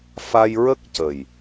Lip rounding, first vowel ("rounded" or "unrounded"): unrounded